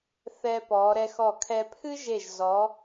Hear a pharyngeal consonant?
no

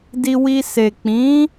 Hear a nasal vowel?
yes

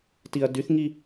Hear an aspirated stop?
no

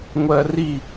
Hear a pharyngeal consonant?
no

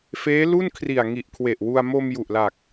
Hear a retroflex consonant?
no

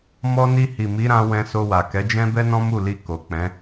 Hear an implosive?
no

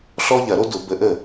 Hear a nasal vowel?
no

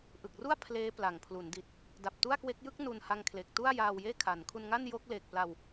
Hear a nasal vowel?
no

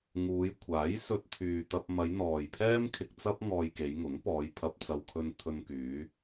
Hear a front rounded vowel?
yes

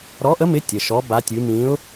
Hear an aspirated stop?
no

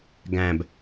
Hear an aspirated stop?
no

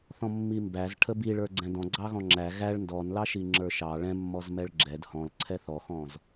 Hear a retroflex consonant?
yes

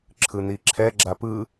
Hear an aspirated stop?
yes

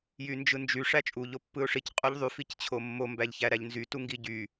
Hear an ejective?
yes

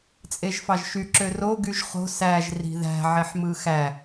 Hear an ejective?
yes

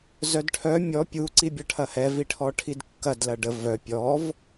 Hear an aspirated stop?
yes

